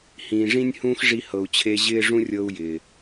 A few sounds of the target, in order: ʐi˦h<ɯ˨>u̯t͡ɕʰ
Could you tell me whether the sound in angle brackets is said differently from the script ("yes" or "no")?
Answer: yes